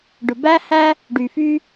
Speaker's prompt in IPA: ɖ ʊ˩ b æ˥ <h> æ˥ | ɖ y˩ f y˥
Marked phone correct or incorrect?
correct